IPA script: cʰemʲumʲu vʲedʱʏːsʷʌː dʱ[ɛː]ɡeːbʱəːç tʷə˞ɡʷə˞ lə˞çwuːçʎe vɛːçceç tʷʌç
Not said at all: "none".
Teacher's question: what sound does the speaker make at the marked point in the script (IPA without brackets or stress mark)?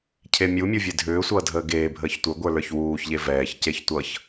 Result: əː